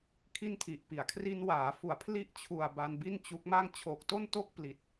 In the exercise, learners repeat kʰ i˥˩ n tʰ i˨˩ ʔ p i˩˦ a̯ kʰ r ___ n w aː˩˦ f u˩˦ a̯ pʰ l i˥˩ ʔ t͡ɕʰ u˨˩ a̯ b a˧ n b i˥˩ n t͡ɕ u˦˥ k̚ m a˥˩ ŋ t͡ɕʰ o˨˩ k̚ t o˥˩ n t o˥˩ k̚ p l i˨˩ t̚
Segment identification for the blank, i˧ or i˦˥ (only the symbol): i˧